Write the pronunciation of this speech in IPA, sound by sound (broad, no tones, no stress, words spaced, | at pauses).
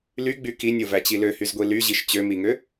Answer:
lyɡ͡by kinʲovæt͡ɕi løhyzɡʷi lyʑiʃ t͡ɕømiŋø